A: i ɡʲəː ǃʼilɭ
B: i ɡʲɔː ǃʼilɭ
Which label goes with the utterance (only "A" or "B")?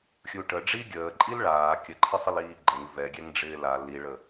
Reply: A